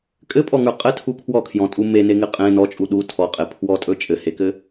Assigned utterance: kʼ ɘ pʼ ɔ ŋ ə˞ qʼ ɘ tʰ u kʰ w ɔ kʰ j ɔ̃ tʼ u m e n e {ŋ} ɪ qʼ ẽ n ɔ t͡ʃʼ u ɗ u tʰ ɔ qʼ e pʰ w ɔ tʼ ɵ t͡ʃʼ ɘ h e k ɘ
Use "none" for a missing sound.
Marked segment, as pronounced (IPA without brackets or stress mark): ŋ